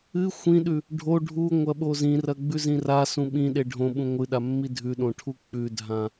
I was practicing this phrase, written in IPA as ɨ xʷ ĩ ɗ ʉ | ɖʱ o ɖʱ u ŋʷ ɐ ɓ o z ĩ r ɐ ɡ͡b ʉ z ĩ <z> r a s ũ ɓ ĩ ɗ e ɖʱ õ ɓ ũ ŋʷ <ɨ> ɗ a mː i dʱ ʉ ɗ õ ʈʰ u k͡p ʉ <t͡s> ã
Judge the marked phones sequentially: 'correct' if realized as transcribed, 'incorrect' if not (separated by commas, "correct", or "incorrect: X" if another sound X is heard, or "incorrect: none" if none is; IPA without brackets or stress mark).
incorrect: none, correct, incorrect: dʱ